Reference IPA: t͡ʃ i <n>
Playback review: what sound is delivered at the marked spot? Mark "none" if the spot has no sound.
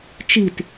t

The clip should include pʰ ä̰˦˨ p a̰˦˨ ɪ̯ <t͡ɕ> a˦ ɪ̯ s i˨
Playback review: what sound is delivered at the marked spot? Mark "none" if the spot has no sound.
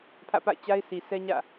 t͡ɕ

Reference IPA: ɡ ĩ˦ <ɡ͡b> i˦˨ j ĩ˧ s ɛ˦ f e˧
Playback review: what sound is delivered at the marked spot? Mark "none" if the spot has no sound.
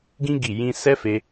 ɡ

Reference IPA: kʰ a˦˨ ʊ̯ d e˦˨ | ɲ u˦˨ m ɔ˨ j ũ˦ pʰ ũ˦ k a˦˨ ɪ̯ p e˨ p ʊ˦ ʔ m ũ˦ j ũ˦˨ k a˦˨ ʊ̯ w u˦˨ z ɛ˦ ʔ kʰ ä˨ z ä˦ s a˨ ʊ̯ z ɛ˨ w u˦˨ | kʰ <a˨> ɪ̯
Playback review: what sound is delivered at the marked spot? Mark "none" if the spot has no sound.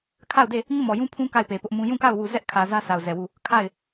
a˦˨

